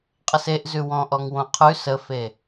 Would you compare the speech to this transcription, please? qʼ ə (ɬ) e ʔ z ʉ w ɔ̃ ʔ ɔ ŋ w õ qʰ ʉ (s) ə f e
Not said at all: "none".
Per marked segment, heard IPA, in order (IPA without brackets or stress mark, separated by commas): s, s